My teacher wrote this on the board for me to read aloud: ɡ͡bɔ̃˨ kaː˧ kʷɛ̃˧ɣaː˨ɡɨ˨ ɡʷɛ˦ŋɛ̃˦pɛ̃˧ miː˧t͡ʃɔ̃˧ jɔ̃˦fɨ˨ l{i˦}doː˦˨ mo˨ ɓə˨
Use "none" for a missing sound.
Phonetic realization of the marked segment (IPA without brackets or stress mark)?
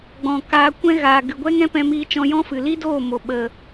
i˦